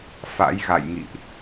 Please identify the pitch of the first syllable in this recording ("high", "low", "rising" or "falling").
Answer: rising